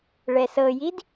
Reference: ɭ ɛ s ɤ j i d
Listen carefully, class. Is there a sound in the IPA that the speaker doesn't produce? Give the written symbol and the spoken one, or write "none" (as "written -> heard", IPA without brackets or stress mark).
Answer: none